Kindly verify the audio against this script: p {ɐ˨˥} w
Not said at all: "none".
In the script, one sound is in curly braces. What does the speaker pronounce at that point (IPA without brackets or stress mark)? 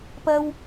ɐ˧